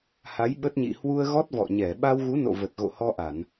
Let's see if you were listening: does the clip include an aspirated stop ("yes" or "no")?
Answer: no